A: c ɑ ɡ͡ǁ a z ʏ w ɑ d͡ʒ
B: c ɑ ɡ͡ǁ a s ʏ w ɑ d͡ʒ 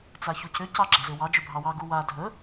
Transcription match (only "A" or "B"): A